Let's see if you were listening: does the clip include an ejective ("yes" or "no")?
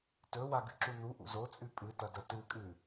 yes